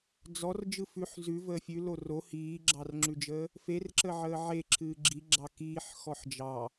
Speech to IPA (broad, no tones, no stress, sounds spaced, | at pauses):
d͡z ɔ r d͡ʒ ɯ f ʉ ħ z ʉ v əː fʲ ʉ l o r o h iː ɡ͡ǁ ɑ r ŋ͡ǁ ʉ d͡ʒ əː | f e r ǁ ə ʕ əː ʕ e ǁʰ ɨː ɡ͡ǁ i ɡ͡ǁ ɑ k iː ħ x ɔ ħ d͡ʒ ɑ